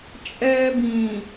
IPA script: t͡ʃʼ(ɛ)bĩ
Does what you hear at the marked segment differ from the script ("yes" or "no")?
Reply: yes